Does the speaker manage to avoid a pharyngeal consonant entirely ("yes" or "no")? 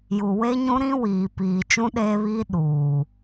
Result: yes